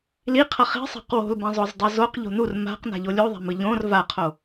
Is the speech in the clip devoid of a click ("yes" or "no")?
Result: yes